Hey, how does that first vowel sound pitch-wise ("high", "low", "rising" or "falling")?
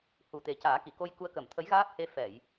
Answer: low